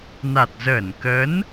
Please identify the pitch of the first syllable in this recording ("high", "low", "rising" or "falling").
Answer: low